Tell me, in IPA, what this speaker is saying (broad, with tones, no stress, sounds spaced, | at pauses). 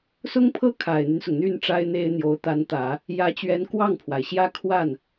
s ʊ˥ ŋ pʰ ɤ˥ kʰ a˨˩ ɪ̯ n̪ y˦ n s ʊ˩ ŋ n̪ y˥˩ n ʈ͡ʂ a˥ ɪ̯ n̪ e˥ ɪ̯ n̪ j o˧˥ ʊ̯ t̪ a˧˥ n t̪ ä˨˩˦ | j ä˧˥ t͡ɕ ɥ ɛ˧˥ n k w ɑ˥˩ ŋ pʰ w a˩ ɪ̯ ɕ j ä˥ kʰ w a˥˩ n